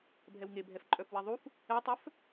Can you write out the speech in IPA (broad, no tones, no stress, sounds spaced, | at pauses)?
bʱ ɛ w ŋ e bʱ ɛ f ǃʼ œ f w e ðˤ u f | ɛ tˤ œ f